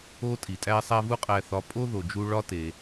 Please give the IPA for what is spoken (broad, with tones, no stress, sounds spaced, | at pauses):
o˥ tʼ i˩ tʼ æ˥ sˤ æ˥ v u˥ qʼ æ˧ θ ɒ˧ pʼ o˥ ð o˩ d͡ʒ u˧ ɭ ɒ˥ t e˩